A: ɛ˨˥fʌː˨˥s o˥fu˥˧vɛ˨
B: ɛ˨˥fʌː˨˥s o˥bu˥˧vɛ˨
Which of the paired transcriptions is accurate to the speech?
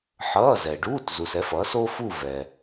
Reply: A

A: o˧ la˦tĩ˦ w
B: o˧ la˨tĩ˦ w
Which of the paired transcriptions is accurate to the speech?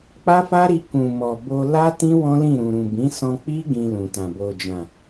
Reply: A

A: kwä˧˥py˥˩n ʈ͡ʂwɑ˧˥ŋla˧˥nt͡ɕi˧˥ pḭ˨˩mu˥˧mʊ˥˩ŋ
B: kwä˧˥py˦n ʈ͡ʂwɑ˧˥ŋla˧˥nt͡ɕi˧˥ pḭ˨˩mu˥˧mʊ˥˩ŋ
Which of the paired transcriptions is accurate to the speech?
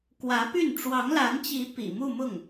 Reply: A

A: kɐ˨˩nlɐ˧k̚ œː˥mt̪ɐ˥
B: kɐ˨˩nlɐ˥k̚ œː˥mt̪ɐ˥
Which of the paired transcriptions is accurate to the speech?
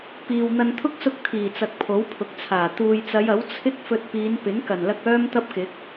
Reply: A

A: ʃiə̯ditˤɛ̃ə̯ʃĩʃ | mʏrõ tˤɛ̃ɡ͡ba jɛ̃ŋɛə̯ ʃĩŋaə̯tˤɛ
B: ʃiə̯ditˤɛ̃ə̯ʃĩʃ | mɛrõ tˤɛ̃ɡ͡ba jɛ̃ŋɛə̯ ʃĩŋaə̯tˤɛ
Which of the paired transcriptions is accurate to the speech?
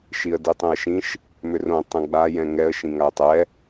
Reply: A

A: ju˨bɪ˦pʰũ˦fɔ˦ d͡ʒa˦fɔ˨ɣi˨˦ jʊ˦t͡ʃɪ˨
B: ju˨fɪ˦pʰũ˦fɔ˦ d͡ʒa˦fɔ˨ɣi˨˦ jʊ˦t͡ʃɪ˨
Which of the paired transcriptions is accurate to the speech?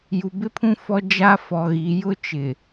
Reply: A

